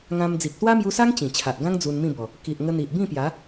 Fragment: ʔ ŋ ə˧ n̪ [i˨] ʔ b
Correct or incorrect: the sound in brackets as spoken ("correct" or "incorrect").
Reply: correct